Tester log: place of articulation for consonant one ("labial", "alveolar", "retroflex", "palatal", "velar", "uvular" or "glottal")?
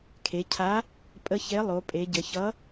velar